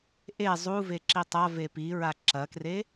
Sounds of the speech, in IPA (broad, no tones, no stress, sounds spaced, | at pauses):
ʔ e zˤ u v e ǁ i tˤ a v e p i ɹ a ǁ ɐ k r e